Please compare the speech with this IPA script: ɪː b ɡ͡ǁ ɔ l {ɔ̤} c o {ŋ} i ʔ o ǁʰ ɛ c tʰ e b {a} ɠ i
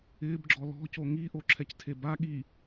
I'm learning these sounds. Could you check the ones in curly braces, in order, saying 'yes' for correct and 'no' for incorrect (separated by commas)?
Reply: yes, yes, yes